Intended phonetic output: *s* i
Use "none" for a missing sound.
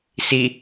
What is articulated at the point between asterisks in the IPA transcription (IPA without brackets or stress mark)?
s